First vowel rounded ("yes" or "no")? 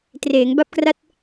no